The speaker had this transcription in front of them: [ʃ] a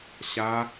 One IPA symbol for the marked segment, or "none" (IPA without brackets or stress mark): ɕ